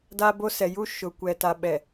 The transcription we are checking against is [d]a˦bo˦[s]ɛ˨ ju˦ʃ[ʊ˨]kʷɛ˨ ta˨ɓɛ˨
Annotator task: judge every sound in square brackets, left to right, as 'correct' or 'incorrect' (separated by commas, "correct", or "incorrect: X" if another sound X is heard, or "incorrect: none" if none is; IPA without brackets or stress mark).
correct, correct, correct